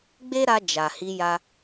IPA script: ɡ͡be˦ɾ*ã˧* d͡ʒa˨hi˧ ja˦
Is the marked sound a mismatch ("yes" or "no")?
yes